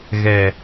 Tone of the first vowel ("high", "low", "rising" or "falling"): low